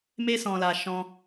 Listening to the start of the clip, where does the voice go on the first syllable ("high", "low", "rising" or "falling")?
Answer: high